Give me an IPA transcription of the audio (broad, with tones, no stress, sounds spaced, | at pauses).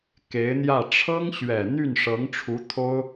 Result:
k e˧˥ ɪ̯ n̪ j ä˥˩ ʈ͡ʂʰ ɤ˥ ŋ ɕ ɥ ɛ˨˩ n̪ y˥˩ n ʂ ɤ˧˥ ŋ ʈ͡ʂʰ u˧˥ t̪ʰ o˥ ʊ̯